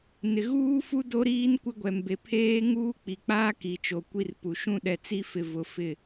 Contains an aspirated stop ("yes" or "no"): yes